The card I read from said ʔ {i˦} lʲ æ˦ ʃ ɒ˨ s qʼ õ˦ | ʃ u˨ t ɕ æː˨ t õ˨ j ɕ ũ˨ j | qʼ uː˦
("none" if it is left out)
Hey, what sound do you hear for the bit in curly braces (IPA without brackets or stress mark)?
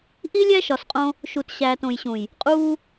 i˦